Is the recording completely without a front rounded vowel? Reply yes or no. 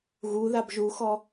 yes